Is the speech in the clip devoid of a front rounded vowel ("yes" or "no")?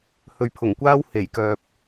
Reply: no